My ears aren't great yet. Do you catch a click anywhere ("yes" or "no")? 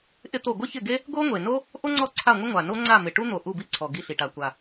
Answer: yes